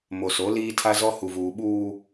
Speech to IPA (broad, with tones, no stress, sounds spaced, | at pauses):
m o˨ s o˨˦ l iː˦ tʰ a˦ z ɔ˦ h u˨ v uː˨ ɓ uː˦